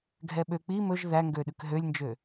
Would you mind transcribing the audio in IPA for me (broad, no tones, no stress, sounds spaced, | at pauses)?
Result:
ɡʱ ɛ ɓ ø k͡p i m ɵ ʒ ð æ ŋ ɡ ø ɗ ʉ k ɦ ø lʲ n d͡ʒ ø